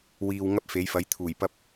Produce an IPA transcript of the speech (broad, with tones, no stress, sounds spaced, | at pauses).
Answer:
w iː˨ w ŋ ɐ˥ p̚ f e˨˥ j f ɐ˨˥ j t̪ʰ uː˨˩ j p ɐ˧ p̚